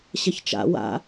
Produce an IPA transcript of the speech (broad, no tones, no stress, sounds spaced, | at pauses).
ɕ ɐ ç t͡ʃ a̰ w a̰